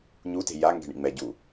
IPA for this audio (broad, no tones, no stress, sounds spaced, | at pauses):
ɲ u t e̤ j a ŋ ɡ ɛ̤ ɳ ḭ ŋ͡m ɛ ɟ u